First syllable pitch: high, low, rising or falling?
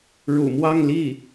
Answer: low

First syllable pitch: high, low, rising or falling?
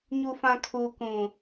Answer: low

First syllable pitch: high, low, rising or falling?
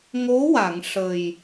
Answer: rising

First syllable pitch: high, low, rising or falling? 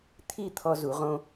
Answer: falling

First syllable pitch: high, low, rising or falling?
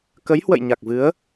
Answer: rising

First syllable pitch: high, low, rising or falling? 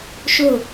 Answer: falling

